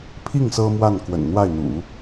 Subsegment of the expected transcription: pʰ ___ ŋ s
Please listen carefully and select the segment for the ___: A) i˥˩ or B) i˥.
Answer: A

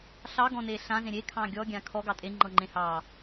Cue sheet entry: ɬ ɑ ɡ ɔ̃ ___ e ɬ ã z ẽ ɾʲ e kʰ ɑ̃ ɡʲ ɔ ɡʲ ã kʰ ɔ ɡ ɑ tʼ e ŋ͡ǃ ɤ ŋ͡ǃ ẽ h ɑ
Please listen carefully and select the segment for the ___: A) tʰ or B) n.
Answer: B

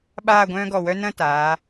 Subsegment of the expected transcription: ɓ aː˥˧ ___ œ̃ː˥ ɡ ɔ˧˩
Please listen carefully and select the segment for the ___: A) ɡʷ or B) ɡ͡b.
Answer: A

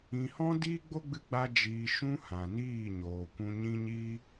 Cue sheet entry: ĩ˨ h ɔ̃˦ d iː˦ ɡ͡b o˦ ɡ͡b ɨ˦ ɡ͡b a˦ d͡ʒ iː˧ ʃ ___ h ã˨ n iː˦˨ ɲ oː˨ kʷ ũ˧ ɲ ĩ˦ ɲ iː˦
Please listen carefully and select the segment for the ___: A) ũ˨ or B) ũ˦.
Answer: B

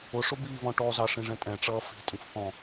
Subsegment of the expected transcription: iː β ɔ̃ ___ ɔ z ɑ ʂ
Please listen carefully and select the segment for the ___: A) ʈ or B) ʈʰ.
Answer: A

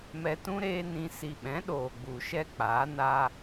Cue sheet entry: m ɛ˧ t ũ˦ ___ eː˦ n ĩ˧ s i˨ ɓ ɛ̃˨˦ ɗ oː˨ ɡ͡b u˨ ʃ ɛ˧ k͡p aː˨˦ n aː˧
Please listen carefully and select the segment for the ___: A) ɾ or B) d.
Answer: A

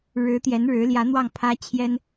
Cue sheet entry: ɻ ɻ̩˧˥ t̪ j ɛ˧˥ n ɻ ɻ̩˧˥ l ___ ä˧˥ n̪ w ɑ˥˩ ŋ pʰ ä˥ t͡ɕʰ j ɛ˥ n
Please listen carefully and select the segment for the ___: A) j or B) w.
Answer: A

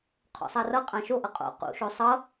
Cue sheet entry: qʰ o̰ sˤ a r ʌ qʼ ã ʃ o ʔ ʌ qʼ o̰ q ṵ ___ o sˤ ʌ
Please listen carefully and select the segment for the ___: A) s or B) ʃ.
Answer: B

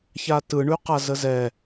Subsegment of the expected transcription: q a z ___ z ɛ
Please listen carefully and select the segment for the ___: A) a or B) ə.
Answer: B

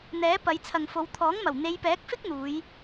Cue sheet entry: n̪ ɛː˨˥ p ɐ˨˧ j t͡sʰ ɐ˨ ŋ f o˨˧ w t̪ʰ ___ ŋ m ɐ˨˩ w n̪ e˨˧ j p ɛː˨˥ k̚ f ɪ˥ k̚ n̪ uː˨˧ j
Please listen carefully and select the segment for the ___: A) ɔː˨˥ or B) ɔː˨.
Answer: A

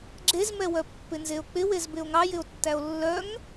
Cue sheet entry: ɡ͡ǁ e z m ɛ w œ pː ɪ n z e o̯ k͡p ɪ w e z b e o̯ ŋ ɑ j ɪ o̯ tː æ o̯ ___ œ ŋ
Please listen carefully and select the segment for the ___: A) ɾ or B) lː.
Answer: B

